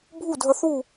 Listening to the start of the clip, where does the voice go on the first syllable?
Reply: falling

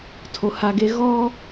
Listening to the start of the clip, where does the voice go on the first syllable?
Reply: low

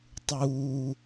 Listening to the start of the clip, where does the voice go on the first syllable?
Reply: low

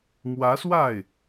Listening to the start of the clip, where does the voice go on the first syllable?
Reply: rising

